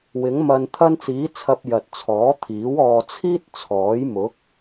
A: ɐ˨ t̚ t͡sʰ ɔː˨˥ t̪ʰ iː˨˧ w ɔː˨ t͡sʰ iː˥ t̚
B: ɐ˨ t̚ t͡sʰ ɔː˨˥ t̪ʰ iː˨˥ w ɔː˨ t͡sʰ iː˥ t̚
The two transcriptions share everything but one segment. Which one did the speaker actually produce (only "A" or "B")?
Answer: B